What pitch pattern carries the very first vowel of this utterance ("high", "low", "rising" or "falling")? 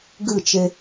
falling